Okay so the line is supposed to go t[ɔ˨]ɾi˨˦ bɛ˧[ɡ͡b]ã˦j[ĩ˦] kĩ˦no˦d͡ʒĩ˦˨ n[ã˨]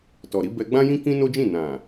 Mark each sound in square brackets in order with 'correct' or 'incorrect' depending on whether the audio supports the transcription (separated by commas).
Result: correct, correct, correct, correct